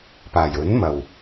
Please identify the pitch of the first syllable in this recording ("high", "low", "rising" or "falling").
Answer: low